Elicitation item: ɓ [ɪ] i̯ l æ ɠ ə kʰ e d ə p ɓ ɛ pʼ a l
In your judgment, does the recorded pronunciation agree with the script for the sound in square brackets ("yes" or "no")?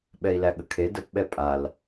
no